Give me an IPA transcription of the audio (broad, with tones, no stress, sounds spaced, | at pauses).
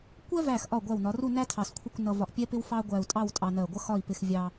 kʷ ɛ˥ v æ˧˩ x ʔ ɒ˧˩ ɡʷ æ˧˩ w n ɒ˩˧ r u˥˧ n æ˥ tʰ ɑ˧˩ s kʷʰ ɪ˥˧ kʷ n ʌ˧ v ɒ˧˩ ʔ pʲ ɛ˥ p ɪ˥ w f ɑ˥ ɡʷ æ˧ u̯ tʼ ɑ˥˧ w tʼ ɑ˧ n ɜ˧˩ ɡʷ ʌ˥ x ɒ˥˧ i̯ p ɪ˧ x vʲ ɑ˧